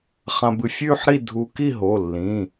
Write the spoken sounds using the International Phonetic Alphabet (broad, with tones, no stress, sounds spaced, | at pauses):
χ ã˧ b ɨ˧ fʲ ʉː˥˧ ħ ɾ i˥˧ dʱ uː˧ k i˥˧ ɦ o˩˧˩ lː ĩ˩˧˩